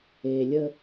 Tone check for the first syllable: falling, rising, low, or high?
low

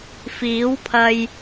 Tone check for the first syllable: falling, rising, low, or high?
rising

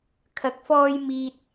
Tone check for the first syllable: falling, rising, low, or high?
rising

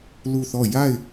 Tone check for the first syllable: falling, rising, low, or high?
falling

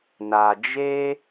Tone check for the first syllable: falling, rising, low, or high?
low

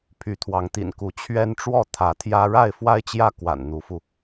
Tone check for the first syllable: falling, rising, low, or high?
rising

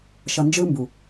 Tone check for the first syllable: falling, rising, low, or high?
low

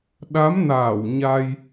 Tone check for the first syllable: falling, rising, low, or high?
rising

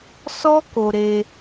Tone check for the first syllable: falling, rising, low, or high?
high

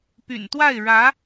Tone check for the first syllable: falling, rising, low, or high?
low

